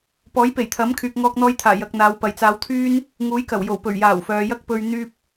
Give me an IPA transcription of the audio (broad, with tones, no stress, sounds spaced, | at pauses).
p ɔː˨˥ j p e˨˩ j t̪ʰ ɐ˨˥ m kʰ yː˨ k̚ ŋ ɔː˧ k̚ n̪ ɔː˧ j t̪ʰ aː˨˩ j ɐ˨ k̚ n̪ aː˨˧ w p ɐ˨ j t͡s aː˧ w t̪ʰ yː˥ n | ŋ uː˨˥ j k ɐ˨˩ w j o˨˩ w p ɵ˨˩ ɥ j aː˨˩ w f œː˨ j ɐ˥ k̚ p ɵ˧ ɥ n̪ yː˥ p̚